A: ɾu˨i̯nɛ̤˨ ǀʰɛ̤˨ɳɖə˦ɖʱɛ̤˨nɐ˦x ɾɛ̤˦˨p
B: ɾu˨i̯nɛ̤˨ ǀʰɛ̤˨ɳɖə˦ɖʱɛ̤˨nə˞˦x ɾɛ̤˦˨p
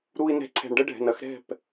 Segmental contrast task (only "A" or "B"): A